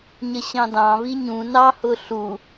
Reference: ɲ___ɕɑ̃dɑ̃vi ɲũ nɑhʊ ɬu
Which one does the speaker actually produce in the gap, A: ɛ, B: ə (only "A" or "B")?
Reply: B